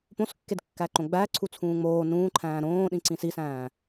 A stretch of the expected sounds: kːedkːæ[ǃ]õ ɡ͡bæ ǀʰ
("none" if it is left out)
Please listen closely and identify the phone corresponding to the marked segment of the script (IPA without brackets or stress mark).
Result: ǃ